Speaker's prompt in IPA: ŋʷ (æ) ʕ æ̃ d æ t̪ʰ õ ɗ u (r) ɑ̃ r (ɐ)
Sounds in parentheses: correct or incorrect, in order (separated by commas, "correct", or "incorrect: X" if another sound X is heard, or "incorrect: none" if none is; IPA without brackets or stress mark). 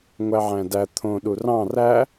correct, correct, incorrect: æ